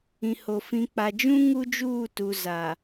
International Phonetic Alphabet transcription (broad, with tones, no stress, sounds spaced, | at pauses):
ĩ˨ h o˨ f ĩ˨ k͡p a˨ d͡ʒ ũ˦ ŋ u˦ d͡ʒ uː˦˨ t u˨ z a˨